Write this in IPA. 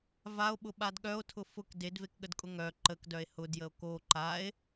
v a o̯ ɓ ʊ ɓ a d ɠ œ o̯ tʰ ʊ f ʊ k d e d v e k ɠ ə d kʼ ʊ ŋ œ ǃ ə k d œ e̯ h ʊ d j ə o̯ k o ǃ a e̯

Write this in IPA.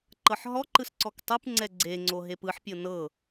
ǃ ɤ ħ ɦ ɔ ǃ ɯ s ǀ ɔ k tˤ ɯ p ŋ͡ǀ ɛ ɡ͡ǀ e ŋ͡ǀ o ɦ e p ɯ ħ pʲ ɤ n ɤ

